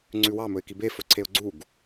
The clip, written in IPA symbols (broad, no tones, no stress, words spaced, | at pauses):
ŋ͡ǀʉwɑ mɵɪ̯kibe fɵǀʰeʊ̯ɡ͡ǀuɡ